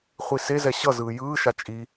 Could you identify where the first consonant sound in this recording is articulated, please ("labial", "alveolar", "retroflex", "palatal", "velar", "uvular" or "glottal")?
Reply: uvular